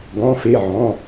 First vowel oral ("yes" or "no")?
no